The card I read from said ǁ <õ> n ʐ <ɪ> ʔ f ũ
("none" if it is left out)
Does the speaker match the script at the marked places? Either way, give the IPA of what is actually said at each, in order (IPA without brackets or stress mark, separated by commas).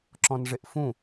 ɔ̃, ɪ